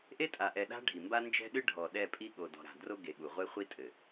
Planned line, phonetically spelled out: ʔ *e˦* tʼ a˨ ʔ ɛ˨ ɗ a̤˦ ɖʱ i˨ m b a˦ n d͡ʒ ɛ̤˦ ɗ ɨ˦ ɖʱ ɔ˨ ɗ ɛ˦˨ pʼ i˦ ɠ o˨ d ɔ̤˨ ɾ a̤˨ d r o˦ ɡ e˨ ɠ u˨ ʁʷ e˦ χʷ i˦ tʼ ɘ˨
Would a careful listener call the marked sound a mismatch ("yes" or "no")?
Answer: no